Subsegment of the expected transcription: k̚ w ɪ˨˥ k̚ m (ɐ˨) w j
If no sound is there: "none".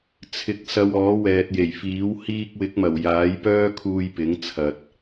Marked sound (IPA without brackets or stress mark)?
ɐ˨˩